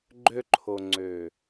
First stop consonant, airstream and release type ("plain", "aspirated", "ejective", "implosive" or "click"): click